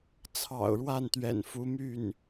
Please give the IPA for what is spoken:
t͡sʰ ɑ̰˨˩ ʊ̯ ɻ w a˥˩ n t̪ ɥ ɛ̰˨˩ n f u˧˥ m y˥˩ n

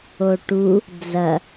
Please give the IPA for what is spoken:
o ʈ u | d͡z ɐ

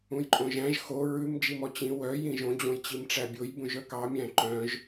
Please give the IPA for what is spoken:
ũ j ǃʼ õ ʒ æ̃ ʒ x o ɹ ʉ m d͡ʒ i m ɔ t͡ɕ ĩ w œ j ĩ ʒ õ d͡ʑ õ j t͡ɕ i m ʈ͡ʂ æ bʲ o j b ũ ʒ œ k ɑ mʲ æ̃ ǃ œ̃ ʒ

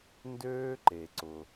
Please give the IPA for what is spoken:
n d øː˦ ǃ e˩ ǀ ʊ˩

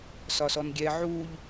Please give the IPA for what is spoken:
s ɒ s ɔ n ɡʲ ɛ ʕ u ʎ

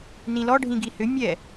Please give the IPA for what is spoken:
n ĩ l ɔ ɖʱ ĩ ɡ i h ʏ mʲ ɛ

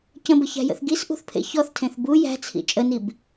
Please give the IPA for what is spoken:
c ə̃ b ə ç æ̤ j ə̰ θ ɡ i s ʔ ṳ θ pʰ ḛ ç ɔ θ tʰ ẽ θ b u j æ̤ t͡sʰ ḭ t͡ʃʼ ə n i b

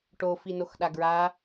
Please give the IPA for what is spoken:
ʈ o f i n o x ɗ a ɡ ɹ a

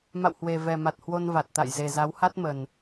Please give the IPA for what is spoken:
m a̰˧˨ w h w e˨˩ v ɛ˨˩ m a˨˩ t̚ h w o˧ n v a˨˩ t̚ t̪ a̰˧˨ j z e˨˩ z a˨˦ w h a˦˥ t̚ m ə˨˩ n

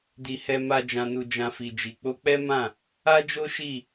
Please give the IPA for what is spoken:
d i˨ h ɛ˧ m a˧ d͡ʒ ã˨ n u˨ d͡ʒ ã˧ f i˨ d͡ʒ i˨ k͡p o˧ k͡p ɛ˦ m ã˦˨ | a˦ d͡ʒ o˦ ʃ i˦˨

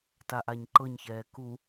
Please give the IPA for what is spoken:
t a ʔ a ɲ ǃ ɤ ɲ ç ɛː k u

